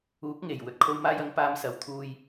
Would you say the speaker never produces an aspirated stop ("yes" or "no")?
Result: no